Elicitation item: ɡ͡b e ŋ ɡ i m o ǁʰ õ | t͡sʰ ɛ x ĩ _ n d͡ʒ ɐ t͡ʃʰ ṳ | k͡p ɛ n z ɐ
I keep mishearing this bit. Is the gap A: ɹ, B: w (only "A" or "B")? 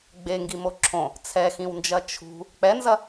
B